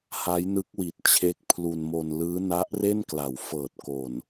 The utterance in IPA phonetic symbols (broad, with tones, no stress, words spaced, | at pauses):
ha˦˥jnɯ˦˥k̚wi˨˩t̚ t͡ɕʰe˦˥k̚ pʰlu˧nmo˧n lɯː˦˥na˦˥ʔre˥˩nkla˩˦w fɤː˨˩t̚ko˨˩n